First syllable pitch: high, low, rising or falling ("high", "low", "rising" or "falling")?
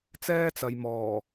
high